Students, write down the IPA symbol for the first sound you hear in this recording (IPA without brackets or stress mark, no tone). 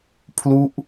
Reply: pʰ